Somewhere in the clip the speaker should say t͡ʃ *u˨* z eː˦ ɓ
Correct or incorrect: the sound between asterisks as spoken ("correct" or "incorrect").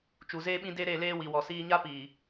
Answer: correct